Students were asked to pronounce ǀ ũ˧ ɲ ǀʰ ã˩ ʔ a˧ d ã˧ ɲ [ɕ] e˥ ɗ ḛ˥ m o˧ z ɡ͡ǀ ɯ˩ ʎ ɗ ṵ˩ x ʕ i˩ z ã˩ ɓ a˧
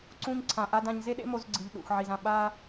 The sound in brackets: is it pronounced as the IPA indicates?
no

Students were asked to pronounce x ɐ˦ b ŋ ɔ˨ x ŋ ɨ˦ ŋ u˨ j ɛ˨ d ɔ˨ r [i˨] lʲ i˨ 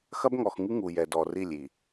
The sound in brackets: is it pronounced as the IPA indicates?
no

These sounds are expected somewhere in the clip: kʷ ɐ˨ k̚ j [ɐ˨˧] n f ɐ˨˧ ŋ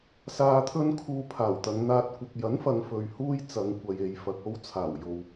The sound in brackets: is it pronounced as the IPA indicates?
no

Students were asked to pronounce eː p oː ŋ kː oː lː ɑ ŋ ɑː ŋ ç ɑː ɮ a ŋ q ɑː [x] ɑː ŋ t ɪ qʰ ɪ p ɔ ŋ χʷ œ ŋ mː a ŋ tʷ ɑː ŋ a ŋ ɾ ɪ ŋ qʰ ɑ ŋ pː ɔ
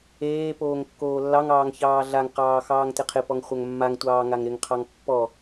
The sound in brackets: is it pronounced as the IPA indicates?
yes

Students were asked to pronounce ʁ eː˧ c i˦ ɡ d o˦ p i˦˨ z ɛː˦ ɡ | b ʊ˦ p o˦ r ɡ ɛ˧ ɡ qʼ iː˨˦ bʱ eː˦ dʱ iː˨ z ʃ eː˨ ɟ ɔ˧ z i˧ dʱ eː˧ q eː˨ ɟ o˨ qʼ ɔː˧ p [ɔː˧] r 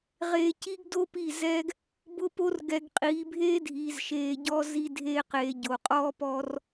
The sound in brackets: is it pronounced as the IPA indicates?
yes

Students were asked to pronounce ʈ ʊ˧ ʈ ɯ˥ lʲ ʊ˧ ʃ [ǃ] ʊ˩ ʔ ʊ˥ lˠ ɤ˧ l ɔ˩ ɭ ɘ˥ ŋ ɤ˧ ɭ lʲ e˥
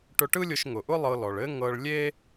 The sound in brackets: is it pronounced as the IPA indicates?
no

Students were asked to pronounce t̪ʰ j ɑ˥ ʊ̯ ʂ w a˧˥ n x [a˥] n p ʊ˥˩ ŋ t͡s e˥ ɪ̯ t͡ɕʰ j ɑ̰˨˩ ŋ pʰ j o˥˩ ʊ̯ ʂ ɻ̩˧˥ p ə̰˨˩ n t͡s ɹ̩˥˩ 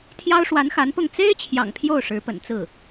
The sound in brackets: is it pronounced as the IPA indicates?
no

